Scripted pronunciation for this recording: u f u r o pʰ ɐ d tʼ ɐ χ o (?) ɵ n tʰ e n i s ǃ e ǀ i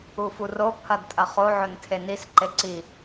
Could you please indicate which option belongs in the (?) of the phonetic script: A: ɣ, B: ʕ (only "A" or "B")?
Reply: B